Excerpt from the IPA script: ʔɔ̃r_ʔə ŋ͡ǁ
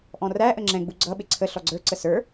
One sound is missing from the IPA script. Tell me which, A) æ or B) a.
A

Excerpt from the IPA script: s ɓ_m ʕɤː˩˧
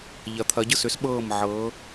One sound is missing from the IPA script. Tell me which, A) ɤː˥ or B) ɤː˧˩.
B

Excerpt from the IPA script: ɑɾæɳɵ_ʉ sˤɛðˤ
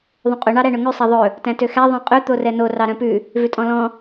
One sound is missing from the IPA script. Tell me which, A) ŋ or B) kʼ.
A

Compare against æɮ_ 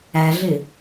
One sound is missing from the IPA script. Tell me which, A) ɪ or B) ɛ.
A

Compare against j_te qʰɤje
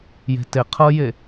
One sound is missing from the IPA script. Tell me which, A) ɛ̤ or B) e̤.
B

